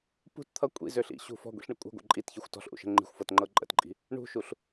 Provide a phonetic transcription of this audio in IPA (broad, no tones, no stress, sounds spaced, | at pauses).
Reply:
p ṳ t t̪ʰ ʌ kʷʼ ḭ z ø ɬ ḭ ɕ ṳ f ɔ̤ ɡʷ ḭ ɬ ɳ ə kʷʼ ə̤ ɡʷ ə̰ ǃʼ i t ç i xʷ t ɔ̤ ɬ ʔ ṵ ʃ ə̤ ŋ͡ǃ i̤ xʷ f ɤ t ŋ͡ǃ ɤ ǃʼ ə̰ t ǃʼ i̤ | ɳ ṳ ʃ u ɬ